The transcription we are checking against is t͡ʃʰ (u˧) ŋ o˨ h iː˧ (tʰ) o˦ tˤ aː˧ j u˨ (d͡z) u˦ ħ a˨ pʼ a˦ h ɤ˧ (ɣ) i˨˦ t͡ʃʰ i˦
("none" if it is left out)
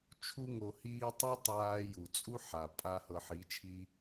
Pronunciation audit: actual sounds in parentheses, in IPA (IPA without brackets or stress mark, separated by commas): u˧, tˤ, t͡sʼ, ħ